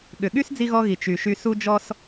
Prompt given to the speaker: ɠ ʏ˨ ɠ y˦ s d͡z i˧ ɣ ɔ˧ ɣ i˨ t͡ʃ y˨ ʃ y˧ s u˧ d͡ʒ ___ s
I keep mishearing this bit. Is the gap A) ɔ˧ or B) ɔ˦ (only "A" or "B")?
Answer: A